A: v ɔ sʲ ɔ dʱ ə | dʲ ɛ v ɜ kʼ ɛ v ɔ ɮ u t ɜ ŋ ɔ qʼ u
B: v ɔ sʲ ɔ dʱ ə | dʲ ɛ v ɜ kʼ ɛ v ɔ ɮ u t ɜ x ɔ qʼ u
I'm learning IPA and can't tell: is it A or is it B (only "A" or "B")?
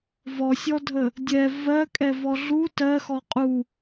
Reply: B